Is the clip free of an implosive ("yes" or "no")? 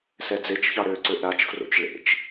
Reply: yes